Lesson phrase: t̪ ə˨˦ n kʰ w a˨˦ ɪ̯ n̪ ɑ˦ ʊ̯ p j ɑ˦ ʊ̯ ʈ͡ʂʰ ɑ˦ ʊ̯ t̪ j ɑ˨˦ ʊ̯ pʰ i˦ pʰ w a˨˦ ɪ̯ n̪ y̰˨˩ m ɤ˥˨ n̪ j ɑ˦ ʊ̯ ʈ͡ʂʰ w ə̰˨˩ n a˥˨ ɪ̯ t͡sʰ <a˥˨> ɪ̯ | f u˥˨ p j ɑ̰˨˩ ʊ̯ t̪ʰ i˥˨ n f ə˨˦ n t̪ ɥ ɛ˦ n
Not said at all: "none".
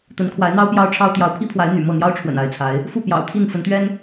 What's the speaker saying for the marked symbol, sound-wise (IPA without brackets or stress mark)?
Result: a˨˦